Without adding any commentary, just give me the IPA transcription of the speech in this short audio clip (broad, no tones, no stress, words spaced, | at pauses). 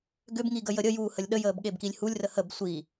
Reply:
ɡʏbŋi ɡəjəɾʲəjuː həlʲɗəjəːb ɠebkilʲhulʲrə həb sʷi